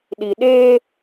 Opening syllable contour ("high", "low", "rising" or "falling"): low